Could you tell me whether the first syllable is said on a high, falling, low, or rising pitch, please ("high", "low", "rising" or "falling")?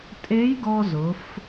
rising